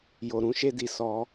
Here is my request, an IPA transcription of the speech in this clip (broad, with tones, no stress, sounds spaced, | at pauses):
j o˨ ɾ ũ˧ ʃ e˧ d i˨ s ɔ˧